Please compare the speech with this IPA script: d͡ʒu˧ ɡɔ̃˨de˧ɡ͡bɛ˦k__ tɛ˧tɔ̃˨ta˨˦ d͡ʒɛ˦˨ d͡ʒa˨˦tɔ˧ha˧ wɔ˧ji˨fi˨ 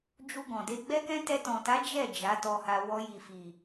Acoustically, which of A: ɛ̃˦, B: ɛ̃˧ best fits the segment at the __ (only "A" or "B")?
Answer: A